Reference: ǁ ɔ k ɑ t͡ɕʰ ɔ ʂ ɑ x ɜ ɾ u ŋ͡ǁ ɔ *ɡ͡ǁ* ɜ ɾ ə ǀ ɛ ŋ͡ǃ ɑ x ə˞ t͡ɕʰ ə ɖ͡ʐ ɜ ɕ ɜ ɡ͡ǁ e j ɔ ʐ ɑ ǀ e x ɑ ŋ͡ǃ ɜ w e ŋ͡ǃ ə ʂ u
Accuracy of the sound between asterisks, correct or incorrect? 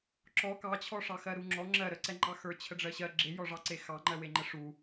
incorrect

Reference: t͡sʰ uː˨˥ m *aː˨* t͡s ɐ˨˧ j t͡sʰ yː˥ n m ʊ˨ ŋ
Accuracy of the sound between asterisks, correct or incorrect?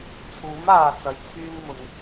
correct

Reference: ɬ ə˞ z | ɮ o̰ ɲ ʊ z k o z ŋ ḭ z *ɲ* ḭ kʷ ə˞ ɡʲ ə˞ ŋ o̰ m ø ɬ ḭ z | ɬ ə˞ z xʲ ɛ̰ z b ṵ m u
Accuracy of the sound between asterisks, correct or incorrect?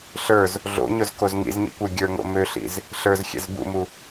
correct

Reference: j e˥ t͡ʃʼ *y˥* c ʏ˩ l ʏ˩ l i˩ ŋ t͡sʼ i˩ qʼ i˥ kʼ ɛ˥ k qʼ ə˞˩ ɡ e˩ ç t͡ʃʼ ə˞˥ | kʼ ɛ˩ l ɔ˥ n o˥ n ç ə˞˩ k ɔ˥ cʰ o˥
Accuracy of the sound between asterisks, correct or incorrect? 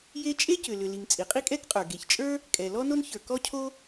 incorrect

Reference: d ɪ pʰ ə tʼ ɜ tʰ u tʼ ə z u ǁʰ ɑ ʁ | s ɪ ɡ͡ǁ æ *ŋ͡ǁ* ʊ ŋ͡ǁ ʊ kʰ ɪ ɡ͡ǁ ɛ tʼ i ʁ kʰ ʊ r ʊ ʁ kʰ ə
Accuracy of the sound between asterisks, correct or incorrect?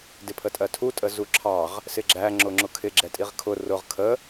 correct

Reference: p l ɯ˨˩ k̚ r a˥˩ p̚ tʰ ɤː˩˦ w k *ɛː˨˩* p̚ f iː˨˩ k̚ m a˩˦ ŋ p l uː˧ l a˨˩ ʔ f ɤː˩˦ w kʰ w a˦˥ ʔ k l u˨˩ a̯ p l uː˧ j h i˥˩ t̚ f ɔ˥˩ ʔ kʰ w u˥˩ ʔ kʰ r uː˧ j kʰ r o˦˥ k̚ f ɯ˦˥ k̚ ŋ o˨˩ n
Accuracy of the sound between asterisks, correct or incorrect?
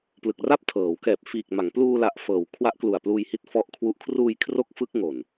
correct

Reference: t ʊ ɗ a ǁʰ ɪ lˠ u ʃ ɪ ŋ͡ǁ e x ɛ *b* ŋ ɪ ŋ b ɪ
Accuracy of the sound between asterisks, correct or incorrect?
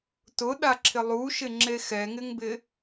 incorrect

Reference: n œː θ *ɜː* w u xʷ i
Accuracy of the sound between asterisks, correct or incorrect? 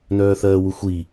correct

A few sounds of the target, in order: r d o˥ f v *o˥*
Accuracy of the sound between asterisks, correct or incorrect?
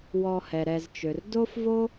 correct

